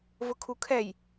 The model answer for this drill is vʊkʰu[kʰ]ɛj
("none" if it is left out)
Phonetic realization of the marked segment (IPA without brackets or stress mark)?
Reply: kʰ